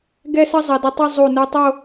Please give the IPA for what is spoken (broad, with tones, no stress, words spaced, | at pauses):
ɡɛ˥sə˥zˤɐ˩˧ dɪ˧tˤi˥˧zˤu˧˩ nu˧tˤo˥˧